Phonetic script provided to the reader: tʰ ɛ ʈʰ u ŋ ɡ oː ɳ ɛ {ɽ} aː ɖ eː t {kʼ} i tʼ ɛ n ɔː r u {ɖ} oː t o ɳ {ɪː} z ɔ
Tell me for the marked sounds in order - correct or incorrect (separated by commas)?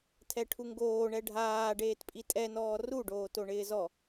incorrect, incorrect, correct, correct